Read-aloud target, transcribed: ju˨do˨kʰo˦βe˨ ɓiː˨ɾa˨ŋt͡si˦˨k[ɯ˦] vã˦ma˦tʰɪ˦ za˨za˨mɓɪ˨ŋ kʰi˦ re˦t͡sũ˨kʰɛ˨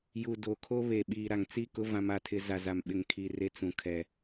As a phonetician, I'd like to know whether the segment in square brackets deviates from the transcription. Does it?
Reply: yes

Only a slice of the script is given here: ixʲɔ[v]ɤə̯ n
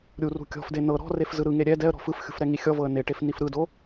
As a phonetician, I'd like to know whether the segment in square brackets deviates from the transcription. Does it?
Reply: no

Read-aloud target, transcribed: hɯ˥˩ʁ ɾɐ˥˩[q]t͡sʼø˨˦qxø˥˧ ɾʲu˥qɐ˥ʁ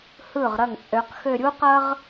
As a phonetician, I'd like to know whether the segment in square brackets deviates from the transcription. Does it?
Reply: yes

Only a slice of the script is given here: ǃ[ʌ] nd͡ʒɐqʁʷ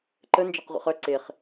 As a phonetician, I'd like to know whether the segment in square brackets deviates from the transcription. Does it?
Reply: yes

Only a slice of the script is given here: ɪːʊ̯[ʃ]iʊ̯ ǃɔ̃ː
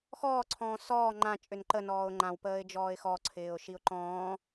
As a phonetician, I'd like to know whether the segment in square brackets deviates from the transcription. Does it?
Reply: no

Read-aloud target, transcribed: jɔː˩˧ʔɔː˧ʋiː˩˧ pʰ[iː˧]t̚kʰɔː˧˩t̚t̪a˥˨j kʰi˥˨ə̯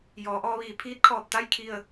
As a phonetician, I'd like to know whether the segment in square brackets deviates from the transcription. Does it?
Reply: yes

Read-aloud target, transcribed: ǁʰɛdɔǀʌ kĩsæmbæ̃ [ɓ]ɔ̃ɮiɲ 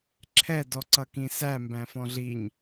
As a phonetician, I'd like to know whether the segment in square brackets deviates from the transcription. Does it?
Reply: yes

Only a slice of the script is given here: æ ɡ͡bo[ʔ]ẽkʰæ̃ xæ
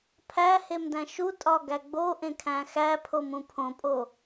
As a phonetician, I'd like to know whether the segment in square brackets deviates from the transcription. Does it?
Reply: no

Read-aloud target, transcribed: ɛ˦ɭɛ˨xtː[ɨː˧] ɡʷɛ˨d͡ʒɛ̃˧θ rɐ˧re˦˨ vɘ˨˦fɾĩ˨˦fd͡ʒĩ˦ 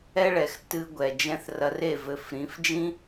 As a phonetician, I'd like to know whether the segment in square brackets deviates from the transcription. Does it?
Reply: yes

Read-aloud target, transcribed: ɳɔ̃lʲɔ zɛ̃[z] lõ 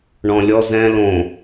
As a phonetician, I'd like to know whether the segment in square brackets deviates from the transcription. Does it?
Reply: yes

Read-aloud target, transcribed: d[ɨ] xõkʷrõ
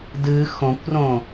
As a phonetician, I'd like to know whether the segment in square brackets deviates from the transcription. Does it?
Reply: no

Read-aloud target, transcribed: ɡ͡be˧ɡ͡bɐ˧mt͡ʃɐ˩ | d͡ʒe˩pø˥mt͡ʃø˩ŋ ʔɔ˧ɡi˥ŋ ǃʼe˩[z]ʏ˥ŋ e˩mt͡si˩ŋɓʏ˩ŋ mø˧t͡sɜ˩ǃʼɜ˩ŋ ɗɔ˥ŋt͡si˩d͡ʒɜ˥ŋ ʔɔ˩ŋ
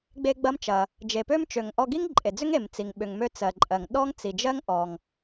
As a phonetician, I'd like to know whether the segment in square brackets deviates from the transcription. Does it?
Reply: yes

